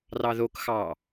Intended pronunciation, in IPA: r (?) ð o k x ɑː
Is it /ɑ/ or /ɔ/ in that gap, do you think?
ɑ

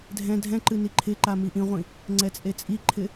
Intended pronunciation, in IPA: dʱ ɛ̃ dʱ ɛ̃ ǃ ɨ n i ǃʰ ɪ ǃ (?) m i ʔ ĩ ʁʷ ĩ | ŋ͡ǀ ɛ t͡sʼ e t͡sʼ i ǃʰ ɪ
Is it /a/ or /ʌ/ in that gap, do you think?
a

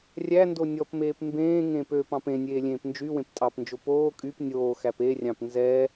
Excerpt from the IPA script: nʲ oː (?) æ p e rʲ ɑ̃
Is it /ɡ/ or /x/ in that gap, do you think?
x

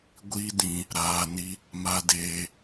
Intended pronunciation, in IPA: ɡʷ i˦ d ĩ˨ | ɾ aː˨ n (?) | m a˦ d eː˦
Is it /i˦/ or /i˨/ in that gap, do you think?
i˦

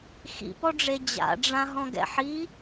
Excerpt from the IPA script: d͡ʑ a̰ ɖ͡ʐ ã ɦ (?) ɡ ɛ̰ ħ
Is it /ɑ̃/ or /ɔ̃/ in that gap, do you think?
ɔ̃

